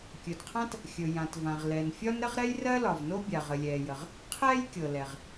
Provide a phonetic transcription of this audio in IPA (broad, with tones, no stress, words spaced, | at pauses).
kʲɵ˩dqʰã˥t | xʲɵ˩jã˩tvã˩ʁ lɛ˩nfʲɒ˥n ɾə˥ʁɾɛ˥jrɜ˥lɒ˩v no˥bʲa˩ ʁə˩lʲɛː˩jə˩ʁ | qʰɛː˥jkʲɤ˩lɛ˩ʁ